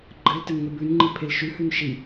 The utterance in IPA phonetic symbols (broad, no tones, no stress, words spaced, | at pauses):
ɡ͡ǃɘl tɘnŋɘbʉnŋ͡ǃi pʰelʃʉhʉn ʃi